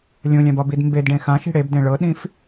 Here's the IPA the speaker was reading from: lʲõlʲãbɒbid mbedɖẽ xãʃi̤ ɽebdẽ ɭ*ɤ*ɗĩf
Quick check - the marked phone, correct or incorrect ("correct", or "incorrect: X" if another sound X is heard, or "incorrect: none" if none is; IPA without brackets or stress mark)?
correct